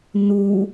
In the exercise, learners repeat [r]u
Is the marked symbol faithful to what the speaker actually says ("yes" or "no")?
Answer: no